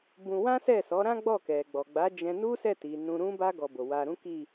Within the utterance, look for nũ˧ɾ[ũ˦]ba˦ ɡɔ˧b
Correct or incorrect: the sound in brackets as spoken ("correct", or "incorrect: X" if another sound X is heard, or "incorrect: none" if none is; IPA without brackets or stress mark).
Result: correct